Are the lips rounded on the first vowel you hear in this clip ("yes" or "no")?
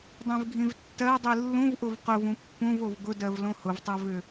no